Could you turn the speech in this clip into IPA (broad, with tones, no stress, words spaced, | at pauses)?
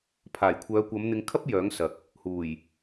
pʰaː˨˩jkʷʰœː˨˧kʷɐ˨˧m n̪ɪ˨˧ŋkʰɐ˥p̚ jœː˨˥ŋsɐ˨k̚ | huː˨˩j